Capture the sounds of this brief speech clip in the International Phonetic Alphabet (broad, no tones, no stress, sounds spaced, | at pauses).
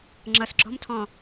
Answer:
ŋ͡ǁ ʌ s ɡ͡ǁ ɔ̤ m tʰ ɔ̃